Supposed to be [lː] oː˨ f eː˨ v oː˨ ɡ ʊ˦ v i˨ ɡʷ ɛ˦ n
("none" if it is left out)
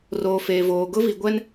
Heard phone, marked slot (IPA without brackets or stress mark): r